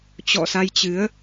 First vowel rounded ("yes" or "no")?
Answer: yes